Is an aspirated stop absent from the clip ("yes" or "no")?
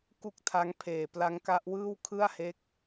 no